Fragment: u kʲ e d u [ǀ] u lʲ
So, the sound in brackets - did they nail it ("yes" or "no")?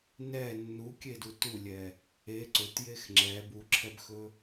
no